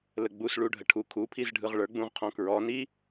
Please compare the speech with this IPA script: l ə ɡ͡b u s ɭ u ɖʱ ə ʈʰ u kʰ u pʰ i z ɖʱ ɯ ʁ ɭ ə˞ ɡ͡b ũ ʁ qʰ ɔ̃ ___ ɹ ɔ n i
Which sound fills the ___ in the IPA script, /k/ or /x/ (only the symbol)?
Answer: k